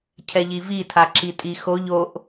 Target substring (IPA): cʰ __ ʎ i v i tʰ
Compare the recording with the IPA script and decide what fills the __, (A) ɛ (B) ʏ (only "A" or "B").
A